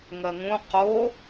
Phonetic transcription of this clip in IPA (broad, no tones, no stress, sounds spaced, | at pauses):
ŋ ɜ ŋ ũ q o